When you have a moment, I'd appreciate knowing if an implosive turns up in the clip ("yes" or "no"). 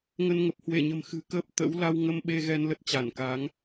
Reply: yes